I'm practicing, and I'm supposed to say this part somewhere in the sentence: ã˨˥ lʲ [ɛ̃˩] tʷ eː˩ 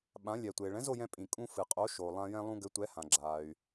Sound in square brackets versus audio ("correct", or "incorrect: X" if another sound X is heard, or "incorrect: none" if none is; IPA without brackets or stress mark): incorrect: ɛ˩